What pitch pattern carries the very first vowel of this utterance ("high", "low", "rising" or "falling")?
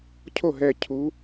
falling